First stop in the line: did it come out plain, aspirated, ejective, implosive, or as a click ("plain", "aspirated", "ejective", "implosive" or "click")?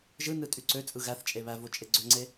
ejective